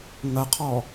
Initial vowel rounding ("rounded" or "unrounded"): unrounded